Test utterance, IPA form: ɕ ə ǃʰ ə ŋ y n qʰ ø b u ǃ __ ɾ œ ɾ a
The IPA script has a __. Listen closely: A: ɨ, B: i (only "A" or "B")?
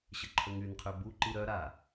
B